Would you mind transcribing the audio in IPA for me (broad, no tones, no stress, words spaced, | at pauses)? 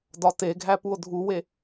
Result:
dɒteɡʱæ puo̯dʱuwe